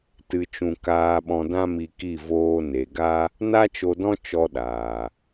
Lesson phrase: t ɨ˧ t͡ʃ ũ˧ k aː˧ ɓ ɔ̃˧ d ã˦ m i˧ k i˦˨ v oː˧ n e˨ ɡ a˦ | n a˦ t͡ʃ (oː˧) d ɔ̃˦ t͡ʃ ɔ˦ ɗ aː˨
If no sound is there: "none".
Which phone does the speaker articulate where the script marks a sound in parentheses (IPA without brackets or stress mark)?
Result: o˧